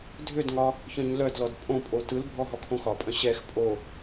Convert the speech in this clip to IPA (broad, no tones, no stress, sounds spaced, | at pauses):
dʱ ʏ d ŋ ɒ | ç œ̃ ɲ l œ d l ɔ d pʼ õ pʼ o t ɯ l bʱ ɔ ɦ ɔ kʰ õ x ɒ pʼ œ̃ ɕ ɛ x pʼ o